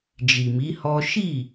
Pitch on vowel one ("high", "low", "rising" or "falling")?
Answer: low